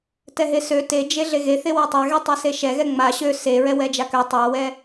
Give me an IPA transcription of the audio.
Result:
t ɛ ɦ e s ø t e d͡ʒ e ɮ e ɣ e θ e w ɛ tˤ a ɣ e tˤ ɛ s e ʃ ɛ ɣ ɛ ŋ͡m a ɕ ø s e ɹ ɛ w ɛ d͡ʒ a k ø tˤ a w ɛ

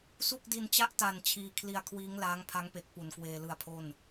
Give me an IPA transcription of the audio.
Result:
s u˥˩ k̚ d i˧ n t͡ɕ a˥˩ ʔ t a˨˩ n t͡ɕʰ iː˧ kʰ l i˧ a̯ kʰ w iː˦˥ ŋ l aː˦˥ ŋ pʰ a˦˥ ŋ p e˨˩ k̚ p u˨˩ n k w eː˧ l ɯ˧ a̯ pʰ o˥˩ n

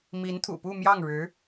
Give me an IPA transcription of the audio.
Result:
m i˧˥ n t̪ʰ ṵ˨˩ p u˥˧ m j ɑ˥˩ ŋ ɻ ɻ̩˧˥

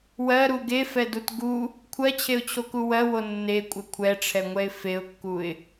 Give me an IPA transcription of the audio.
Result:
w ɜ ɾ u ɡ e f ɛ d u t ɡ u | kʷʰ ɜ t͡ɕʰ e ʊ̯ t͡ɕʰ o k u w ɜ w o nː e kʷʼ ɛ kʷʰ ɛ ʈ͡ʂʰ ɛ ŋʷ ɛ ɪ̯ f e ʊ̯ kː u ɪ̯

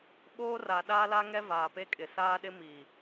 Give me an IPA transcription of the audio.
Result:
ɓ oː˦ r a˨ ɗ aː˦ l a˦ ŋ ɛ˦ v aː˨ p e˦ kʼ ɪ˨ s aː˦ ɗ ɪ˦ m iː˨

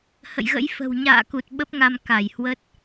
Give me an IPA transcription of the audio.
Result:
h ə̰˧˨ j ɣ ə̰˧˥ j f ə̤˨˩ w ɲ a̰ː˧˨ k u˨˩ t̚ ɓ ə˦˥ p̚ ŋ a˧ m k a˧˩ j h w ə˦˥ t̚

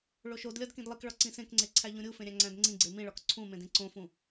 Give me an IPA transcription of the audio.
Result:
ɭ o ʃ o d lʲ ɒ d k ĩ d lˠ i k ɭ ɒ ǀ ĩ s ẽ k ŋ͡ǀ e ǀʰ æ ʎ ũ ɾʲ u f ẽ ɾʲ æ̃ ŋ͡ǀ æ̃ d ŋ͡ǀ ĩ ɡ͡ǀ e m ĩ ɭ ɒ k ǀʰ ũ m ẽ d ĩ ǀ õ f ũ

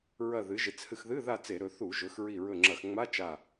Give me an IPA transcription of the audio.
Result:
ɹ ɐ˧˩ ð ɨ˩˧ ʒ e˩˧ t͡s h ɨ˧˩ x ð ɨ˧˥˧ ð a˥˨ t͡s e˧˩˧ ɾ ɵ˩˧ θ u˧˩˧ ʒ ɵ˩˧ x ɹ i˧˩ ɹ ɵ˧˩ ŋ͡ǁ ɐ˧˩˧ x ŋ͡m a˧˥˧ t͡ʃ a˧˩

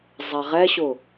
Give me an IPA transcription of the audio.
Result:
zˤ æ ʁ ɛ ɕ ʊ

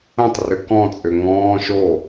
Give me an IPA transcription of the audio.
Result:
ə̃ tˤ r ʏ k ɔ̃ t͡sʼ ʏ ŋ ɔ̃ː ʃ o

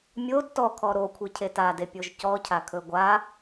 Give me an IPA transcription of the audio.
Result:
mʲ o d t ɔ kʰ ɔ ɾ o kʷʰ e cʰ e t a d e pʲ o ʒ c ɔ cʰ a kʰ ɵ ɡʷ a

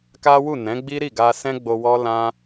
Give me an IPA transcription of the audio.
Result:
k a˦ w u˦˨ n ɛ̃˨˦ ɡ͡b i˦ ɾ i˦˨ ɡ a˧ s ɛ̃˦ ɡ͡b o˧ w ɔ˦ l ã˦

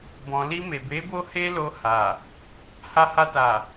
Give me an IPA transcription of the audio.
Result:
b ɔ̃˨ l i˧ m e˨ b e˨˦ b o˦ h e˦ l o˧ h a˨ | h a˧ h a˧ t a˨

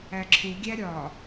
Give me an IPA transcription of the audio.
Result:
æ ǁʰ u ɡʲ æ ɾʲ ɒ

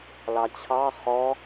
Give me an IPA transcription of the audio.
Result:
l ɑ t͡ɕʰ ɑ χ ɔ

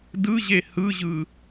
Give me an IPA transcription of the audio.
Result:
d ɯ ʑ e h ɯ ʑ ɯ

